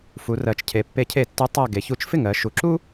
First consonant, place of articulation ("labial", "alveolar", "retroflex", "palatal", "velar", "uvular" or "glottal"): labial